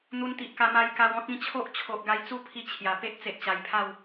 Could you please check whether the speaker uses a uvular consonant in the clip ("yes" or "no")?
no